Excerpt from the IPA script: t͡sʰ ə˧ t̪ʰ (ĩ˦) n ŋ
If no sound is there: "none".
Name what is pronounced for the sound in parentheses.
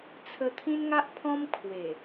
ĩ˦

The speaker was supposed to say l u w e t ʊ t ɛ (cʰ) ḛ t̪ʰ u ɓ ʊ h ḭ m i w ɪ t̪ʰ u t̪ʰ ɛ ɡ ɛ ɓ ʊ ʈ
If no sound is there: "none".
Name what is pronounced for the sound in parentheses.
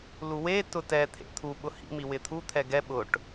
t̪ʰ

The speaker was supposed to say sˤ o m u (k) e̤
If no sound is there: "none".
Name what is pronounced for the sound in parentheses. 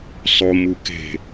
k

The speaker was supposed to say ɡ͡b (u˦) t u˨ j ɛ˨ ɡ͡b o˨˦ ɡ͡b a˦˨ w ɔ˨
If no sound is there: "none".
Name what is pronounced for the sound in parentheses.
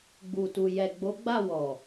u˨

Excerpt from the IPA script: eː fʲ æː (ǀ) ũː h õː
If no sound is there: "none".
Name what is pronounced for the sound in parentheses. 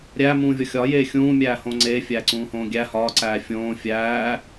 ǀ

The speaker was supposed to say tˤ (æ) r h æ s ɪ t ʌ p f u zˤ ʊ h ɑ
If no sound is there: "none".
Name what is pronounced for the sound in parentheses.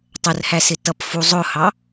ə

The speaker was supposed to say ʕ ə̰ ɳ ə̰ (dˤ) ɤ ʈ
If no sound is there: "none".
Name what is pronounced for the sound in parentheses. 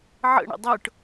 dˤ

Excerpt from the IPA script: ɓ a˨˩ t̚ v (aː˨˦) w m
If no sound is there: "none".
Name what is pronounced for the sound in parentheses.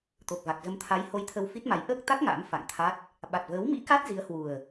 əː˨˦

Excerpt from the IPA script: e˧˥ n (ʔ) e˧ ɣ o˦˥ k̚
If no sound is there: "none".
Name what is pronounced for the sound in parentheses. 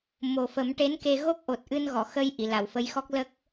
k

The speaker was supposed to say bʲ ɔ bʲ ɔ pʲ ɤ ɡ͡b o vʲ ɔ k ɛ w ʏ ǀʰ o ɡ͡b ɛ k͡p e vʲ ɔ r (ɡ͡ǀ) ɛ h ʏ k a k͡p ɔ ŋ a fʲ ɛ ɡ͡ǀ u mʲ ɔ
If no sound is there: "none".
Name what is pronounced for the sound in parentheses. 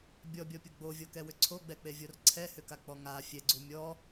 ǀʰ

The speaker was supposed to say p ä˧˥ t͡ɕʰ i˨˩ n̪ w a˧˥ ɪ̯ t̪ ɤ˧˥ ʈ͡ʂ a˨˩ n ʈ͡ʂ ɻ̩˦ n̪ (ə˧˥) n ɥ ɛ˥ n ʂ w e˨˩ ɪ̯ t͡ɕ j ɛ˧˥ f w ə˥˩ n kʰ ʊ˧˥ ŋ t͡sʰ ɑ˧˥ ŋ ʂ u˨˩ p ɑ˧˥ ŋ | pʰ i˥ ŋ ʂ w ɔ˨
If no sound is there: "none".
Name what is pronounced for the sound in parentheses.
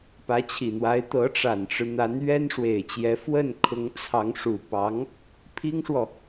a˧˥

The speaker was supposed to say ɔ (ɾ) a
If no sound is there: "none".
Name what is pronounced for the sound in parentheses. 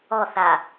θ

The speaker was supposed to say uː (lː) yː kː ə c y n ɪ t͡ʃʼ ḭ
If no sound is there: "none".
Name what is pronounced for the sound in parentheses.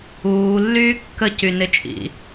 lː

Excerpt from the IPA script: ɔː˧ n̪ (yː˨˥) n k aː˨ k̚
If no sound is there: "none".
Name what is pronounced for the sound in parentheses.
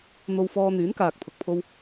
yː˨˥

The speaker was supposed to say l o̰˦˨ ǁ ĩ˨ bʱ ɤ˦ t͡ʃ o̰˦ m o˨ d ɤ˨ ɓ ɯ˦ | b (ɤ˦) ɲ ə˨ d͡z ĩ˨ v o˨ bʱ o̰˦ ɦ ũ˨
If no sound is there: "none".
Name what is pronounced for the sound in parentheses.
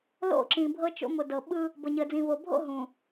ɤ˨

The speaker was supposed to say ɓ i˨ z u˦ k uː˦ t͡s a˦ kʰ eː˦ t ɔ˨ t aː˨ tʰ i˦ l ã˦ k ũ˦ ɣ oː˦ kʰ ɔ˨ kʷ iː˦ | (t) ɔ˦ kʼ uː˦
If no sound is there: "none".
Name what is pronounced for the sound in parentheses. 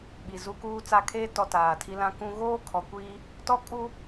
t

